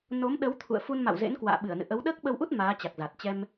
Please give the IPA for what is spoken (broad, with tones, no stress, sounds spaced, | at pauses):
n o˨˦ m ɗ ə˨˦ w t̪ʰ ṵ˧˨ ə̯ f u˧ n m a̰˧˨ w z ḛ˧˥ n k w a̰ː˧˨ ɓ ɨ˧˩ ə̯ n ɨ̰˧˨ ʔ ə˨˦ w ɗ əː˦˥ k̚ ɓ ə˧ w ʔ u˦˥ t̚ m aː˨˦ t͡ɕ a˨˩ k̚ z a˨˩ t̚ t͡ɕ ɛ˧ m